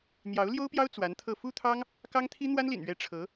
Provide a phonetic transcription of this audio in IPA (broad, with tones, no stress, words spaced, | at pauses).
n̪jɑ˧˥ʊ̯ ljo˥ʊ̯pjɑ˥ʊ̯ t͡swa˧˥nt̪ʰɤ˥˩ fu˥t̪ʰɑ˥ŋ | kɑ˥ŋt̪ʰi˥ n̪wa˥nlḭ˨˩n ɥɛ˧˥ ʈ͡ʂʰɤ˧˥